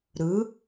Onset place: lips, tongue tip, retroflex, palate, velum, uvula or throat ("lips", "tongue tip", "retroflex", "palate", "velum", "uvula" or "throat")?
tongue tip